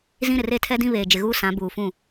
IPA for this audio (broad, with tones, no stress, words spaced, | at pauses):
zĩ˦ɾɪ˨r e˦˨tʰɛ˦dĩ˦ βeː˨d͡ʒɪ˨ɣuː˦ sã˨˦buː˨fũ˦˨